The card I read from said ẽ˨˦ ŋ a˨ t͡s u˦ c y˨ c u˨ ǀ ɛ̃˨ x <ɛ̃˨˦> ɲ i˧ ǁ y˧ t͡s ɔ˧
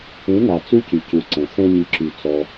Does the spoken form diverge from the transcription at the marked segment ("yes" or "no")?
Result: yes